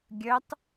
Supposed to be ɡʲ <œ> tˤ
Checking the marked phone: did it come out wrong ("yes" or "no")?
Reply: no